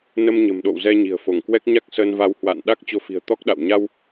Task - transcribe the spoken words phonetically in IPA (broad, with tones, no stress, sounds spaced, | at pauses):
n ə˧ m ɲ ə̤˨˩ m ɗ o̰˧˨ w z ɛ˧ ɲ i̤˨˩ ə̯ f o˧˩ ŋ k w ɛ˦˥ k̚ ɲ a˦˥ k̚ s əː˧ n v a˧ w h w a̰ː˧˨ n ɗ a˦˥ k̚ t͡ɕ o˨˦ f i̤˨˩ ə̯ t̪ ɔ˦˥ k̚ ɗ a̰˧˨ w ɲ a˧ w